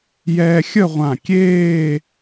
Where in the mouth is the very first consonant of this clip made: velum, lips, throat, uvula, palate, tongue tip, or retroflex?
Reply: palate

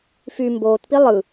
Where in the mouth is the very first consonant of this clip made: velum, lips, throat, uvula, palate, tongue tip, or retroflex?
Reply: lips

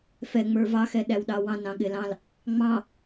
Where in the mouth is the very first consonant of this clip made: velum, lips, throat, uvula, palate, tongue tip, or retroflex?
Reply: lips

